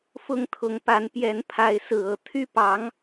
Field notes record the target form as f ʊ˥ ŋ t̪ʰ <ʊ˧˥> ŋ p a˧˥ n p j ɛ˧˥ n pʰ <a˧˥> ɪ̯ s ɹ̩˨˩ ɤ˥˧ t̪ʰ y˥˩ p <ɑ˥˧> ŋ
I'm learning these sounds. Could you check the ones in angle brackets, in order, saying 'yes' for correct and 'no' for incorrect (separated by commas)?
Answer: yes, yes, no